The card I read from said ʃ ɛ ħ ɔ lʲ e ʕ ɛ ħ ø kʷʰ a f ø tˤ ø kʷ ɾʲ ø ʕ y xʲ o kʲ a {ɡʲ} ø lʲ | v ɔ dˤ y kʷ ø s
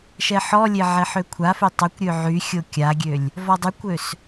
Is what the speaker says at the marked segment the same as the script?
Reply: yes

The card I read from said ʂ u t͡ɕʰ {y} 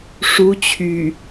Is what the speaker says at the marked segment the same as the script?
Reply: yes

